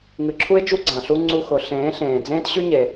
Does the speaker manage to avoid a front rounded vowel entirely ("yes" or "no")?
no